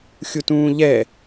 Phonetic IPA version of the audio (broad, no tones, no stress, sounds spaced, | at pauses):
xʲ u t ũː ʎ ɛ